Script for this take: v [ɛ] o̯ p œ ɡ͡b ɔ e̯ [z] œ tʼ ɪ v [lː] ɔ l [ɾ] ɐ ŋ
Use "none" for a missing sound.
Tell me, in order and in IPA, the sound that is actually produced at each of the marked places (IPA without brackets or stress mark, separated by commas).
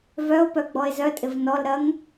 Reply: œ, z, n, ɾ